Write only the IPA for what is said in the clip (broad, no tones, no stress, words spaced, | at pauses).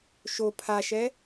ʃo pʰaʃɛ